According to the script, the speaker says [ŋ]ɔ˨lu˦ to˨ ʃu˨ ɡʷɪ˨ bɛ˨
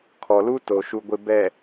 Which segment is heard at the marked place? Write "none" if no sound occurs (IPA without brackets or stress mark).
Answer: kʰ